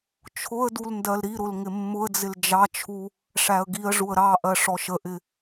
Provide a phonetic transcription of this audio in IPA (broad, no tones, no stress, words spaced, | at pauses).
t͡ʃʰʊə̯dul ndɜlɾiɾʊl ŋɪmːʊə̯d͡zɪl d͡ʒɑt͡ʃʰu | ʂæə̯ɡiə̯ʐuə̯ ɾɑ ʔɜʂɔʃəʔɪ